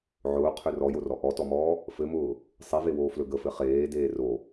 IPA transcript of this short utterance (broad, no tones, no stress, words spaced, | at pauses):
ʕʊːqʰø rɔjorɔ ʔɔtɔmɔː | fɘmʊː | sˤivewoːflɵ ɡəfɘ χeːdeː ro